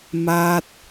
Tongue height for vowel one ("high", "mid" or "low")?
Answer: low